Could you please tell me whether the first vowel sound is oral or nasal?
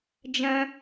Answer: nasal